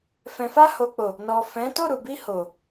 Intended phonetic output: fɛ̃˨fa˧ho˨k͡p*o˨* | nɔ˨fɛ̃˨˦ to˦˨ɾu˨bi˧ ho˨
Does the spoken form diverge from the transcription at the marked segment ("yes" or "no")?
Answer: no